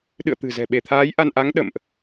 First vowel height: high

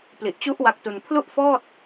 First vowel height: high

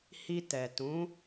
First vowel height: high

